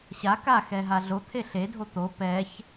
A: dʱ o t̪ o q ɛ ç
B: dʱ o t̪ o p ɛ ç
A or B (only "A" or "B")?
B